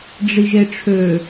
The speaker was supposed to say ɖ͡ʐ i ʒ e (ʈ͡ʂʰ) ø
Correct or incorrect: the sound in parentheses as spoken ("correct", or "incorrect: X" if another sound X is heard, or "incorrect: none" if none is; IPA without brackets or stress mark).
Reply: correct